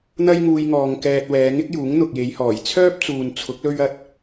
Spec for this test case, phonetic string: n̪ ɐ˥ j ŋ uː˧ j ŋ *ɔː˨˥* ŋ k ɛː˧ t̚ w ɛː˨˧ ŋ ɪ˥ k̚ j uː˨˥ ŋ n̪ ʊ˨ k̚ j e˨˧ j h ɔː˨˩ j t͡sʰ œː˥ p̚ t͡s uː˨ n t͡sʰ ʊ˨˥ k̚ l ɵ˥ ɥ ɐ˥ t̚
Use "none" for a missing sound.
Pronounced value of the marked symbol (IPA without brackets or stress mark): ɔː˨